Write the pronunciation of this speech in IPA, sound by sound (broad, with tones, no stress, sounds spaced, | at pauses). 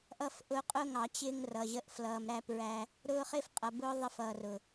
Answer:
ʔ ʌ˦ f ʔ ʊ˦ qʼ ʊː˦ ŋ ɑ˨ t͡ɕ ɪː˦ ŋ r ʌ˨ ʑ ə˦ ʔ f l ʌː˨ m ɾ æ˦ p ɹ æ˦ | ɾ ʊː˦ χ ɪ˦ f qʼ ʌ˨ b ʊː˦ ðˤ ɪ˦ f ʌː˨ r ʊ˨